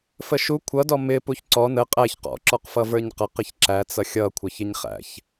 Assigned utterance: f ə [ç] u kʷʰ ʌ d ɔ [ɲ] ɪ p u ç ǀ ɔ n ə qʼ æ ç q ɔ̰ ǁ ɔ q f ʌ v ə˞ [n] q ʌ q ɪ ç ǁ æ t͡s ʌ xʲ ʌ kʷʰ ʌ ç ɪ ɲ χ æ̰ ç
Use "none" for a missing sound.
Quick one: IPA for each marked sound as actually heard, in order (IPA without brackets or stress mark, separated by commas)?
ʃ, m, ɲ